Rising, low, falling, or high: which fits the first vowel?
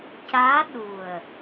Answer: rising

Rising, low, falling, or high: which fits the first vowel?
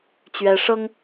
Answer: high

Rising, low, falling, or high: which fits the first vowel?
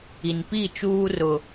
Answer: low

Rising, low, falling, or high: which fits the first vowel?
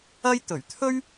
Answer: high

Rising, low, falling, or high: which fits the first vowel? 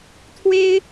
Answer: high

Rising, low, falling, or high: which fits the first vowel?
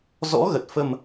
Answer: rising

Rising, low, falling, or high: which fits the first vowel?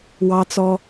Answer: high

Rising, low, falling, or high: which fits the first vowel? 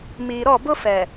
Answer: low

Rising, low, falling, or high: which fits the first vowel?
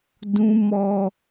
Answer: high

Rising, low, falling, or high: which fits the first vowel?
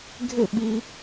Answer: falling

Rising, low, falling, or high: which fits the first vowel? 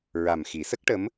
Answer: low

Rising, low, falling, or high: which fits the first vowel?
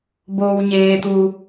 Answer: low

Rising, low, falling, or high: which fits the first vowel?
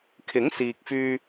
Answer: rising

